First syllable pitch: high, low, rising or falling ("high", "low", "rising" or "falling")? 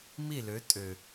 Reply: falling